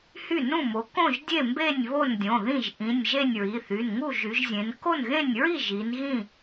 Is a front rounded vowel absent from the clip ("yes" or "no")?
no